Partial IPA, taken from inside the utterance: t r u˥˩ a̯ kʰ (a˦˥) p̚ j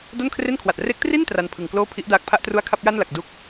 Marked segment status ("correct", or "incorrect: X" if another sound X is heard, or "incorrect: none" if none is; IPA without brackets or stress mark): incorrect: a˥˩